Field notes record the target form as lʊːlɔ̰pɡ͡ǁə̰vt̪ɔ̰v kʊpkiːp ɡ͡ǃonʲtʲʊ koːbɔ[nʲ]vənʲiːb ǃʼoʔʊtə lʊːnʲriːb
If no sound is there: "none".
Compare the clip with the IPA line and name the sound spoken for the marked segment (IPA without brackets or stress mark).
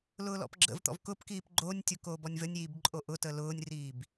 nʲ